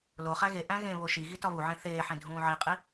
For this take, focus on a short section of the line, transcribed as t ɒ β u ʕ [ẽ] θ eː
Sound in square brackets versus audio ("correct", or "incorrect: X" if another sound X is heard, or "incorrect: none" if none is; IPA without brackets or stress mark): correct